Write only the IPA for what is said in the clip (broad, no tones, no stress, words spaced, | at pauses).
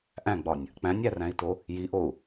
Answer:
ʔæ̃ɡ͡bɒnʲ | k͡pæ̃nʲæræ̃i̯to | jiʔou̯